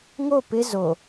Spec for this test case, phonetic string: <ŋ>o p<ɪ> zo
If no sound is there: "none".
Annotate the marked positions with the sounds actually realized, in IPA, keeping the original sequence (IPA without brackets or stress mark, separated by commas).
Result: ŋ, ɪ